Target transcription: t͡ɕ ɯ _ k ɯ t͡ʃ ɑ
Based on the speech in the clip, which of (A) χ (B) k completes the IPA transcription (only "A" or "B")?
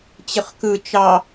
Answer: A